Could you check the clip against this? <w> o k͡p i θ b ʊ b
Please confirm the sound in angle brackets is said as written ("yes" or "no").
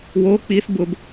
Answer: yes